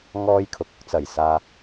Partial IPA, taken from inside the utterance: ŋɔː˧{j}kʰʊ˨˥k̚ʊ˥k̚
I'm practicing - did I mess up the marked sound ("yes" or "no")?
no